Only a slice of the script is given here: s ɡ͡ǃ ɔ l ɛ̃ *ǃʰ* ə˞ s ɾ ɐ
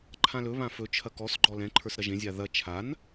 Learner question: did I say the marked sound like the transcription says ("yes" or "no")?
yes